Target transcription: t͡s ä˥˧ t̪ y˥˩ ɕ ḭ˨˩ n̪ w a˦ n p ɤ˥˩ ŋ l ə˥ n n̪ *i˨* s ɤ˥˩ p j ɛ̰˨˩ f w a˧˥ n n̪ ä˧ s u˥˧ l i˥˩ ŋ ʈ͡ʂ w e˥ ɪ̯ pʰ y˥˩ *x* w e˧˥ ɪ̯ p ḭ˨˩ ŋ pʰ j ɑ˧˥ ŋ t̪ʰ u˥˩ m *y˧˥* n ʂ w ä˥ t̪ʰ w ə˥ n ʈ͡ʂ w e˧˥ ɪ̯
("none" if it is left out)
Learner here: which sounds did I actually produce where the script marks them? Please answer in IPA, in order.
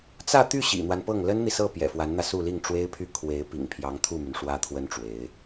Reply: i˨, kʰ, y˩

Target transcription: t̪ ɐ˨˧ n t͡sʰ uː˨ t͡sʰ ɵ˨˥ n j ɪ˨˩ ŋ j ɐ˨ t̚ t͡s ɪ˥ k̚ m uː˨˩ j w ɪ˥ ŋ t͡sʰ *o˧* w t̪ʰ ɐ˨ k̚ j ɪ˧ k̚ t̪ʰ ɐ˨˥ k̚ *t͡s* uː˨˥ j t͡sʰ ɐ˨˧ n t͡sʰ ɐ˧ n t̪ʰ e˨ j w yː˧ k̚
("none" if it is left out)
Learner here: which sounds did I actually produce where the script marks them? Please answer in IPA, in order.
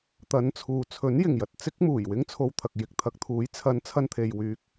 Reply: o˧, t̪ʰ

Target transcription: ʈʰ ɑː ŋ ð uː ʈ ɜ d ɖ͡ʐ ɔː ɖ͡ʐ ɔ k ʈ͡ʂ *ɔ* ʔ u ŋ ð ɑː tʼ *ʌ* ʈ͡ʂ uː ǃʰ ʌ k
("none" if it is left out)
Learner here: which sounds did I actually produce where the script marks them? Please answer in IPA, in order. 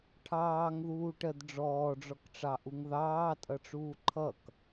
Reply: ɑ, ʌ

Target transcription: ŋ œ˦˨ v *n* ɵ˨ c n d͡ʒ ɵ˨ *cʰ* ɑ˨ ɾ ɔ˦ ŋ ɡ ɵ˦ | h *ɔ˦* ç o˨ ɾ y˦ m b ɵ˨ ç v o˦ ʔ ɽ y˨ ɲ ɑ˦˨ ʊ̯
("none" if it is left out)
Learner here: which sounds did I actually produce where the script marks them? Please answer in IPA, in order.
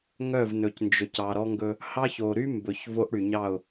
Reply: n, c, ɑ˦

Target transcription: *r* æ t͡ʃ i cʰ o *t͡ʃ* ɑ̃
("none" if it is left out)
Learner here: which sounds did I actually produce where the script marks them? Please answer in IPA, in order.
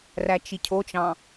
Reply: r, t͡ʃ

